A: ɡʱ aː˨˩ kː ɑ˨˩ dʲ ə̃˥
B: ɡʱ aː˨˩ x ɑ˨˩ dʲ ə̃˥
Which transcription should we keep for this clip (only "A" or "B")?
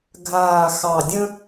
B